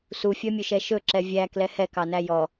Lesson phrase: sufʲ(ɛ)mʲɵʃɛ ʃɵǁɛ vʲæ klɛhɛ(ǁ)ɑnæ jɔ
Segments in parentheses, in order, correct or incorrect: incorrect: œ, incorrect: k

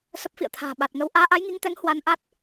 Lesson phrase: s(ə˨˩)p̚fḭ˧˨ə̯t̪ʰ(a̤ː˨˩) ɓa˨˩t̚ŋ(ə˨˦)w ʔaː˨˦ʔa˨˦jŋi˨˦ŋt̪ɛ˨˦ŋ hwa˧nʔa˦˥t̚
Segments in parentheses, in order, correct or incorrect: incorrect: ə˦˥, correct, correct

